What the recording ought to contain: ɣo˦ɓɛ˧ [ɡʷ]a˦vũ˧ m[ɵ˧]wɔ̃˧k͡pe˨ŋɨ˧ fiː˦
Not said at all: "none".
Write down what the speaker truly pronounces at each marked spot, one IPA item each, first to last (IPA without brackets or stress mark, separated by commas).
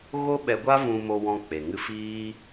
ɡʷ, o˧